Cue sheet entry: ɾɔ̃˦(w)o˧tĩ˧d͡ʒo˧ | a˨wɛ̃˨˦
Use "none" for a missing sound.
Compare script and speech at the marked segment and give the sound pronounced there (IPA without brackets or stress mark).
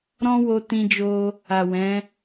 w